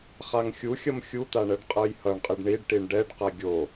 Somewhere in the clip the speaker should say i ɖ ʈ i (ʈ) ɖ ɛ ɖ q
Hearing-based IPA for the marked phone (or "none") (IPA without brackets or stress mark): ɳ